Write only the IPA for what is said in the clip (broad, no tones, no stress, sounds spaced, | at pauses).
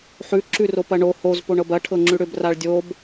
ħ ʉ ǁ ʉ r o p ɐ ɳ o h o z p o ɳ ɤ b ɐ ʈʰ ɤ ŋ͡ǁ ʉ ɽ ʏ b r a ɭ dʲ o b